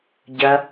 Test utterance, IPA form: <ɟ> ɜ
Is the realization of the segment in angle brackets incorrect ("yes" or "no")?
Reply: no